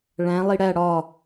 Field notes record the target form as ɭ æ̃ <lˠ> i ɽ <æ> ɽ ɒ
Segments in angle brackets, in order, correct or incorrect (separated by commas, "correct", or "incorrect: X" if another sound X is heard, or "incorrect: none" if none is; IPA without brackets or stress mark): correct, correct